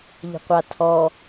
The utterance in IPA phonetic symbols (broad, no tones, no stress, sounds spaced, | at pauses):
ʎ ə̤ qʷ a tʰ ɔ